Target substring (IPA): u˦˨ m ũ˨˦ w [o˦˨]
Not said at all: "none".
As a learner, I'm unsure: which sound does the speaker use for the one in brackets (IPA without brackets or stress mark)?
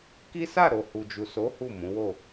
o˦˨